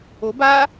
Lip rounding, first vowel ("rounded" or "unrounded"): rounded